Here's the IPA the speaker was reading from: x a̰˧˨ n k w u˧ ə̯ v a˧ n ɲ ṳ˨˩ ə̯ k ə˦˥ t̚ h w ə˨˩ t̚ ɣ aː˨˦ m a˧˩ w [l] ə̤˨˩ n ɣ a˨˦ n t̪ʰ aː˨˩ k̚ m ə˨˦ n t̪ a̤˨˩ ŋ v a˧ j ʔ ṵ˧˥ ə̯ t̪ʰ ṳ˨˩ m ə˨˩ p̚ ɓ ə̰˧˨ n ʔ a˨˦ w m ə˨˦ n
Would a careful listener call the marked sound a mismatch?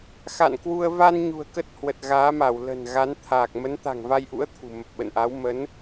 no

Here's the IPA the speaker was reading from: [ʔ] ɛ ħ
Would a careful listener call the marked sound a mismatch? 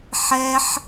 yes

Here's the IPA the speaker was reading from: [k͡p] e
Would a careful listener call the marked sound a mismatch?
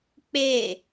no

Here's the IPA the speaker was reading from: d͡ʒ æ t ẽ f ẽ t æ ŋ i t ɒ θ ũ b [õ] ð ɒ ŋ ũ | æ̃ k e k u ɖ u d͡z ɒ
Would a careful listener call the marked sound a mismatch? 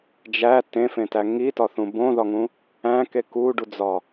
no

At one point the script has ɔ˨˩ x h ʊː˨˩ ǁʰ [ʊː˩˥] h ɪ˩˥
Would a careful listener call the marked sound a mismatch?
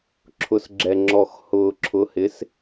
yes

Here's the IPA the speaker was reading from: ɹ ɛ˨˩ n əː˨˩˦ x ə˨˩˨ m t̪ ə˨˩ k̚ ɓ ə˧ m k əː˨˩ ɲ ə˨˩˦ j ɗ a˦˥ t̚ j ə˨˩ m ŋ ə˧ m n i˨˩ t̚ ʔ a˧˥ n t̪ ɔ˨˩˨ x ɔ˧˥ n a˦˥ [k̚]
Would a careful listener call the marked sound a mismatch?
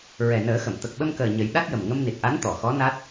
yes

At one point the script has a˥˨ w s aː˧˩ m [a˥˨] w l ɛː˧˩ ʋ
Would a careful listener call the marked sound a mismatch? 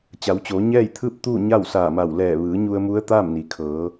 yes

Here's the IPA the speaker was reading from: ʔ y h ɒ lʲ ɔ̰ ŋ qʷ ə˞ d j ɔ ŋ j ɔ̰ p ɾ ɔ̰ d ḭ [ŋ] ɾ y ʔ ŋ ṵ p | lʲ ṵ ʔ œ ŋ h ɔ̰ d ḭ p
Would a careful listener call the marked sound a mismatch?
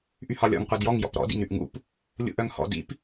no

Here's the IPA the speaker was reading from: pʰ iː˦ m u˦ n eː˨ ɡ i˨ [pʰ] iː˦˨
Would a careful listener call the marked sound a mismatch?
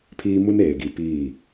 yes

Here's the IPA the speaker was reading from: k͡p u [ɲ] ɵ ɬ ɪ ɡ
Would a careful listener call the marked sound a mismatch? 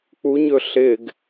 no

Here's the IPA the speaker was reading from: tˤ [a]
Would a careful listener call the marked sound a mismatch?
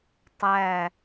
yes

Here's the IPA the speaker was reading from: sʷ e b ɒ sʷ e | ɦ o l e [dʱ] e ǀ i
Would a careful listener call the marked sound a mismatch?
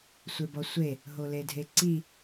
no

